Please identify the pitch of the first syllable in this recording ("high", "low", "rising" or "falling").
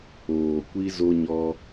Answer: low